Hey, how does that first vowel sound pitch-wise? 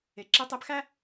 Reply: low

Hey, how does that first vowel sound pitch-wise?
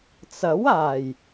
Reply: rising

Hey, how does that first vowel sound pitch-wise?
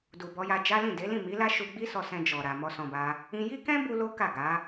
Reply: low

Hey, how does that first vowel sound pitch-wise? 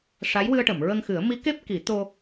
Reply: rising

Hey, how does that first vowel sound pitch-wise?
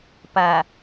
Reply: low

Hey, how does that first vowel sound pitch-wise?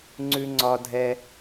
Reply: high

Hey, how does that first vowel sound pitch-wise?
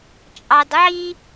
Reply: low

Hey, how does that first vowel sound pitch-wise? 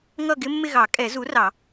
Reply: falling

